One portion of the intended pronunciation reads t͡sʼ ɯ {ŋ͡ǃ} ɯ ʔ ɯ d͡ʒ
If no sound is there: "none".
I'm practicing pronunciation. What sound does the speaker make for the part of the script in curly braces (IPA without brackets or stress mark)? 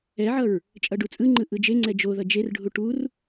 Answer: ŋ͡ǃ